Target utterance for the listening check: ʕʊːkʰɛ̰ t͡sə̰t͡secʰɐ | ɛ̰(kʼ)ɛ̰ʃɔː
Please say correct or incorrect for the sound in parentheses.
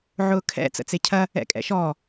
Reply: correct